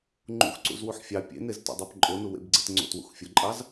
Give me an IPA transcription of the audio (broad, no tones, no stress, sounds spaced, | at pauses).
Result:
ŋ͡ǃ ṵ x ǀ ṵ z w u ħ fʲ ɑ pʲ ḛ n e z t o̰ dˤ a p ǃʼ o n u w ḛ b ɡ͡ǀ ḛ t ŋ͡ǀ o̰ t w ṵ x fʲ ʊ ǃʼ ɑ z